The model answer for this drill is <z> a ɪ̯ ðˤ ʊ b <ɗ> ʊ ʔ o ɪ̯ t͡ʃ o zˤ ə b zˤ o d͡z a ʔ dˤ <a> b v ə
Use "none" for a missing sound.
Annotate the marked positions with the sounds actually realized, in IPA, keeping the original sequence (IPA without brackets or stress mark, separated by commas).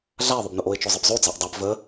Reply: ɮ, n, a